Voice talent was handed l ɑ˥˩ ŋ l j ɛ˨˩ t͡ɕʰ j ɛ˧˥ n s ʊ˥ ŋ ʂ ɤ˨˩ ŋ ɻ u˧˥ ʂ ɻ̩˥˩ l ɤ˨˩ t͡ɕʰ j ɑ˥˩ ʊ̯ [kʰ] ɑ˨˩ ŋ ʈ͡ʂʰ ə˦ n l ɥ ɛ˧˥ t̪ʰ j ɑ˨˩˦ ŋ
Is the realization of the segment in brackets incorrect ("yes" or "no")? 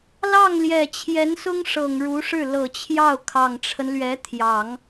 no